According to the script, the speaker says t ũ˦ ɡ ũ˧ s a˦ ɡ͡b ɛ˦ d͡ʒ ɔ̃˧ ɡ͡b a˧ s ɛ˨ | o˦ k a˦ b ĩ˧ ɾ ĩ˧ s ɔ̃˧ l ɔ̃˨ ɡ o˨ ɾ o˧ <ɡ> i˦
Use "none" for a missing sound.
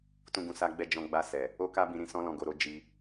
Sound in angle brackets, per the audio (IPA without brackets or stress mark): d͡ʒ